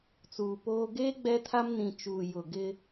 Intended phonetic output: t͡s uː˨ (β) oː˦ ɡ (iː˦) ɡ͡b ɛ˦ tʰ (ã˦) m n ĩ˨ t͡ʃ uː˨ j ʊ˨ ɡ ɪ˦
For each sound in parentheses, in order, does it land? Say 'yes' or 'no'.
no, no, no

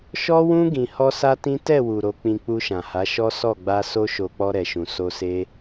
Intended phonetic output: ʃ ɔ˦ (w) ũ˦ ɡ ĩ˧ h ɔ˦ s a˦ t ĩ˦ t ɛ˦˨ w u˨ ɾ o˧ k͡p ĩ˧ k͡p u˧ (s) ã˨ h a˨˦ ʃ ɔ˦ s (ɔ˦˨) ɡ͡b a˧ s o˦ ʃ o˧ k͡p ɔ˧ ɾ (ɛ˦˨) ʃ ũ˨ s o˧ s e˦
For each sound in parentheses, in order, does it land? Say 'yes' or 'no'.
yes, no, yes, no

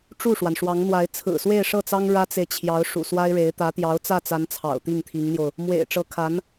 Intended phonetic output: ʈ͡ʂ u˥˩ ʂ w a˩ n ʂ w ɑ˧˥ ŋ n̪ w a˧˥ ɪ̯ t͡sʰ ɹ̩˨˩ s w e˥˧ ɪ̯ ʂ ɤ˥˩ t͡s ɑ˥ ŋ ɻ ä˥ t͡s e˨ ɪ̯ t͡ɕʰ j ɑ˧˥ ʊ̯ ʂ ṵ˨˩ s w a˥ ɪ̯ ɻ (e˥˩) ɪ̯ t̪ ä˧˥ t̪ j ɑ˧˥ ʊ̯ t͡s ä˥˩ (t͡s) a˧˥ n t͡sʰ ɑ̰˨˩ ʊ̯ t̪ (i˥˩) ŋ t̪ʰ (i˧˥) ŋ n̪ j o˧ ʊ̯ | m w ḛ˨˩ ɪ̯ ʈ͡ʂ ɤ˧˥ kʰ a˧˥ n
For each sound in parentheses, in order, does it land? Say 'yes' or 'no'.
no, yes, yes, yes

